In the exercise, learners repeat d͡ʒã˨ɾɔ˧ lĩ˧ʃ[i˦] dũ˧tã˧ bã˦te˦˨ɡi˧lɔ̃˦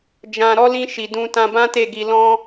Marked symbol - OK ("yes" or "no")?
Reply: no